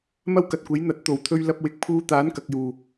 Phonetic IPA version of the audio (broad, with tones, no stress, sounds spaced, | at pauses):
m ɐ˥ w k ɐ˨ t̚ kʷ e˨˥ j n̪ ɐ˨˥ t̚ t̪ o˨˩ w t̪ʰ ɵ˧ ɥ l ɐ˧ p̚ w ɪ˨ k̚ pʰ uː˧ t̪ aː˨˥ n k ɐ˨ k̚ j uː˨˩